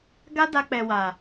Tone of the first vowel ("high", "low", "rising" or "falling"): high